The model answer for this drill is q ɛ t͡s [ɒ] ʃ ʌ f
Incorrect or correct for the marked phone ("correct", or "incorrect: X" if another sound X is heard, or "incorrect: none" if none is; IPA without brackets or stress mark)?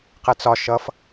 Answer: correct